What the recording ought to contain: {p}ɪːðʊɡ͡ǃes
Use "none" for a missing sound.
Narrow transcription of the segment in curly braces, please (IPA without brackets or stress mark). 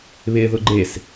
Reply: β